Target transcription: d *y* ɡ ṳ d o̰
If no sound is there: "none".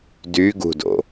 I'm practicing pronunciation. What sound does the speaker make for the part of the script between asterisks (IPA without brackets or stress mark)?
y